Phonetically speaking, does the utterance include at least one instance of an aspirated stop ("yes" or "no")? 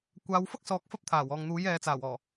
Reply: yes